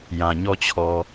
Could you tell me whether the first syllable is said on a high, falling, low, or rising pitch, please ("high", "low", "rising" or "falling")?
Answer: low